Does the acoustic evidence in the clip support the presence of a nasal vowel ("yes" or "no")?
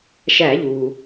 no